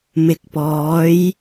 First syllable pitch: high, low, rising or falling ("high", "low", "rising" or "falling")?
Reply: low